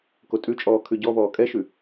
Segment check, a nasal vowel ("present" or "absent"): absent